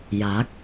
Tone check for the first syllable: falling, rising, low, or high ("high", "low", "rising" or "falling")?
rising